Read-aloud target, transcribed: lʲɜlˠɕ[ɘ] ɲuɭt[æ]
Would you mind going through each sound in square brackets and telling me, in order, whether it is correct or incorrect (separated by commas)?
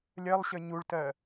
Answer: correct, incorrect